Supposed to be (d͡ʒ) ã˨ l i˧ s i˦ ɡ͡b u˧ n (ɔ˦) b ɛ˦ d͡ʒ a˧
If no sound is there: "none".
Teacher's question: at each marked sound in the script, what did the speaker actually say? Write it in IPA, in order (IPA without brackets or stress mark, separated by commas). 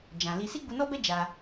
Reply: d͡ʒ, ɔ˦